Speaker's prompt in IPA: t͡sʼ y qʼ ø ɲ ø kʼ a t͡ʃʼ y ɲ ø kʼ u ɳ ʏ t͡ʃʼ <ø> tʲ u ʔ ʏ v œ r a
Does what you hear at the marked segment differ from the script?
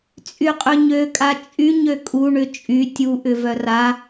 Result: yes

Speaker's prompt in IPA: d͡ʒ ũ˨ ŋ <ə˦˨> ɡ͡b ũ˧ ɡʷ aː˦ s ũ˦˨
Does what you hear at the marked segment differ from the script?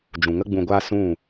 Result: yes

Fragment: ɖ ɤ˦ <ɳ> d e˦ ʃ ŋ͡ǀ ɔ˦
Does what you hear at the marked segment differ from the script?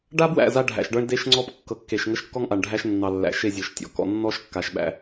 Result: no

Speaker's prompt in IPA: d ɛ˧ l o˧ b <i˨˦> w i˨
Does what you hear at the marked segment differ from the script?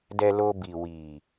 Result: yes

